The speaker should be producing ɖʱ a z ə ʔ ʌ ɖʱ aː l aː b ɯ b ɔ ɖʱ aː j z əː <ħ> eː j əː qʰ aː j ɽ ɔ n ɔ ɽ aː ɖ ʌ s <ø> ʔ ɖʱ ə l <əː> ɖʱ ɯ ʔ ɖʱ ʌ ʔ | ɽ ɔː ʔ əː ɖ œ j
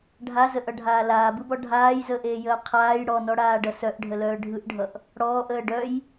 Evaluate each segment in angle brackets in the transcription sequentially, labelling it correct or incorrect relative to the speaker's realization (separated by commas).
incorrect, incorrect, incorrect